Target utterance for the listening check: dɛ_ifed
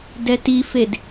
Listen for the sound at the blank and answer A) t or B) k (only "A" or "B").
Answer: A